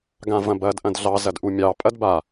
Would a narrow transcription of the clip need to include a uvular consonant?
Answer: no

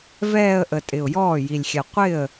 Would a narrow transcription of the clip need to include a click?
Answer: no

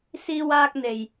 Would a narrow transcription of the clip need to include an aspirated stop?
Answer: no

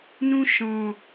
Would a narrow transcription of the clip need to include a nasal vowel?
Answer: yes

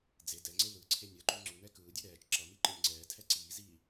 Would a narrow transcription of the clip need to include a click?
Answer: yes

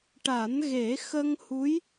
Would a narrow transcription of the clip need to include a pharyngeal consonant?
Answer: no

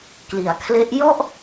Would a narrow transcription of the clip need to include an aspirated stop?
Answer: yes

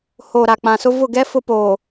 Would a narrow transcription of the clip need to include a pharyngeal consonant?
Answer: no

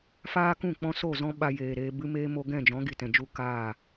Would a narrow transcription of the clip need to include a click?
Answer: no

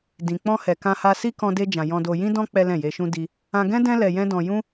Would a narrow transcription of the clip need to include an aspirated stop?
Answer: no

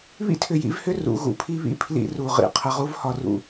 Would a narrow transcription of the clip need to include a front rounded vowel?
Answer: yes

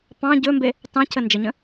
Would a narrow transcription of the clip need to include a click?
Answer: no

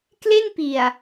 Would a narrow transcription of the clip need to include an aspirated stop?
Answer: no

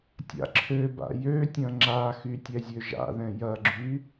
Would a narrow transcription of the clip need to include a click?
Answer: yes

